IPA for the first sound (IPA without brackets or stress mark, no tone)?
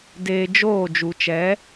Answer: d